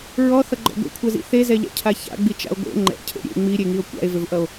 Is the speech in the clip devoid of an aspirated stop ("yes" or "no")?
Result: no